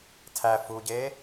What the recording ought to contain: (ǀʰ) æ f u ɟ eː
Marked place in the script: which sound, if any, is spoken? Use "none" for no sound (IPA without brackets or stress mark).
tʰ